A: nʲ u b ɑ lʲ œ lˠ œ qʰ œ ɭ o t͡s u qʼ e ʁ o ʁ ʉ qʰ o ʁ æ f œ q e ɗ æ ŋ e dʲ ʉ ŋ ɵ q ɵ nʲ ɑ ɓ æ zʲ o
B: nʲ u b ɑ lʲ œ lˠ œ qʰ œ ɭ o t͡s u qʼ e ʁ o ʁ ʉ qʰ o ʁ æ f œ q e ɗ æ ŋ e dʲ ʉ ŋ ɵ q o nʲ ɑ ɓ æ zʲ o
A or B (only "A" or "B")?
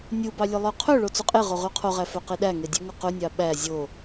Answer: A